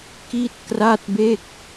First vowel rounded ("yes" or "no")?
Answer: no